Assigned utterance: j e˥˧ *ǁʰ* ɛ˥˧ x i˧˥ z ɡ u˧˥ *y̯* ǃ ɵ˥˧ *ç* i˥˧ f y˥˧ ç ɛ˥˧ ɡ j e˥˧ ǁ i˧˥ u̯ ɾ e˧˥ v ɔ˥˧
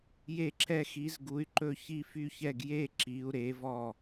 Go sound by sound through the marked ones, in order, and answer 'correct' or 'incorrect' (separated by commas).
correct, correct, correct